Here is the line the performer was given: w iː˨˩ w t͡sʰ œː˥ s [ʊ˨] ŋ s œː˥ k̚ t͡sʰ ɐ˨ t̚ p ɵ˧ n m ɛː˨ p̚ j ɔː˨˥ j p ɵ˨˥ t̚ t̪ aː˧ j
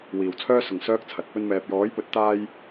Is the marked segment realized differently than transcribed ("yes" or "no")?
yes